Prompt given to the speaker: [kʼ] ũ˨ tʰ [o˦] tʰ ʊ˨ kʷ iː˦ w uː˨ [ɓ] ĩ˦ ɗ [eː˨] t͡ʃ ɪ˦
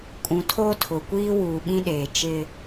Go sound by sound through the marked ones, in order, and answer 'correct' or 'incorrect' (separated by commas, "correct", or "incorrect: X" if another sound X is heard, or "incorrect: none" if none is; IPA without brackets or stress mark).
correct, correct, correct, correct